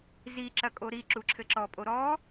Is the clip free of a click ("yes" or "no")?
no